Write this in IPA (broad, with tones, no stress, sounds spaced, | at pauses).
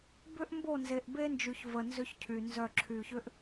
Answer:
b ʏ˦ ʔ m b o˦˨ n z e˨ ʔ b e˦ n d͡ʒ y˨ ç v ə˨ n z ʏ˦ ç cʰ y˨ n z œ˦˨ ǁʰ y˨ ç ʏ˦ ʔ